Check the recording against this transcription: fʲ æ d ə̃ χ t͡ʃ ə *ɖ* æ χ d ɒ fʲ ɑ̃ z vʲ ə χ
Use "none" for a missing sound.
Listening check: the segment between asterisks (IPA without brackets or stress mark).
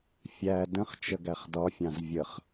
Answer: ɡ